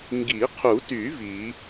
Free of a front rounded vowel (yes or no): no